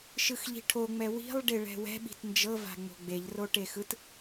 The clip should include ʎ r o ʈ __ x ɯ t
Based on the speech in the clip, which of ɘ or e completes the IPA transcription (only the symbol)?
e